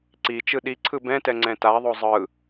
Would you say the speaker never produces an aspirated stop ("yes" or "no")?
no